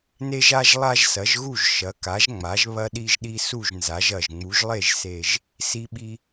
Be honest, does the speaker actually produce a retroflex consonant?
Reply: no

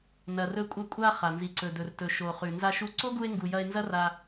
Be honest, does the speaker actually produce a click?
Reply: yes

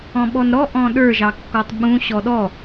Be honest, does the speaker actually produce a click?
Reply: no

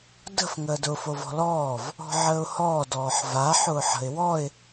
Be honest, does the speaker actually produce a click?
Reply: no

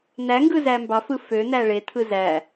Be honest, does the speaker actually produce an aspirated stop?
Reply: yes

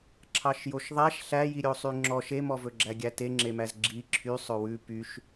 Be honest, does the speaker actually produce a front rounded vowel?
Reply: yes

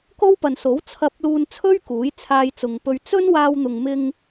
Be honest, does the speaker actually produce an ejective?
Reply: no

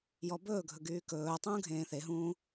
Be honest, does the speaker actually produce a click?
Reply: no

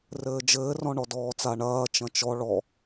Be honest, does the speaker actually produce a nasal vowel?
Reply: yes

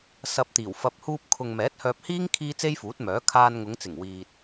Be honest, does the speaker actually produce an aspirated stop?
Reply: yes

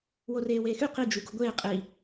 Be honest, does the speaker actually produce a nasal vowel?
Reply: no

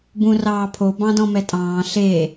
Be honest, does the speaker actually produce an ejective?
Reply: yes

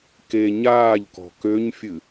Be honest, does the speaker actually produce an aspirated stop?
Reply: no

